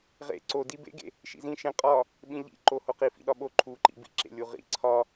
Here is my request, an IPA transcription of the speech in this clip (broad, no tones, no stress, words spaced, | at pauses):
ʁḛ ǀo dibḛɡḛ | ʃḭzĩ ʃẽ qʼɒ | ɓĩʎḭ ǃohoqi fḭɗɒɓo ǃʰuǃḭ bḭǁḛlʲu ʁḭ ǀʰɒ